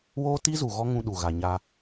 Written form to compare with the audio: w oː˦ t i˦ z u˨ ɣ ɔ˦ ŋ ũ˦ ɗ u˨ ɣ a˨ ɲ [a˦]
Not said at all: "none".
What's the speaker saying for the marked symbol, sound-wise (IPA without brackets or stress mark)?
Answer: a˦